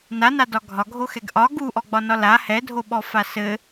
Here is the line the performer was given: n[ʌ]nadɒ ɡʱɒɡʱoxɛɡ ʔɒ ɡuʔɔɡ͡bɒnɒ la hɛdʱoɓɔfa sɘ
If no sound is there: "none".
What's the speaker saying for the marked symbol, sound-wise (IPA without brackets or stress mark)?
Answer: a